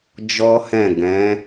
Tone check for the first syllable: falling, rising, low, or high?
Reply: high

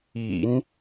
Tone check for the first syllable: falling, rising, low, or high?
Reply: low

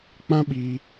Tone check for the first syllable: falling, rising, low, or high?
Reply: high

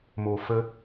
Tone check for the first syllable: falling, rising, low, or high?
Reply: low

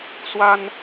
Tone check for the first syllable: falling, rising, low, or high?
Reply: high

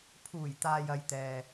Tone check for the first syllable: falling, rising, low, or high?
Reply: low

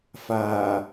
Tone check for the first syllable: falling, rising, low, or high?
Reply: low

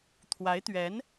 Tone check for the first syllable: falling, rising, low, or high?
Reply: rising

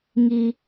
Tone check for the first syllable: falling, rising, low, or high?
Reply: low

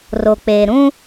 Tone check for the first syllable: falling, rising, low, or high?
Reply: low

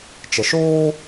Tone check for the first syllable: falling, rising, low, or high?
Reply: low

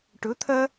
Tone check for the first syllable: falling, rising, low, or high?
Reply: rising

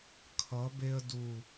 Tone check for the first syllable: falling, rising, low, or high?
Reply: rising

